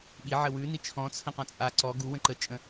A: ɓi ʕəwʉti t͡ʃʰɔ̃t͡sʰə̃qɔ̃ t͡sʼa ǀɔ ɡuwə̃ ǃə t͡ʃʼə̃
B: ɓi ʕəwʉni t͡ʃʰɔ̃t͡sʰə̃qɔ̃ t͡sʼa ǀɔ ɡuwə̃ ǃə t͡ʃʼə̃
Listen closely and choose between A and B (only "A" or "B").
B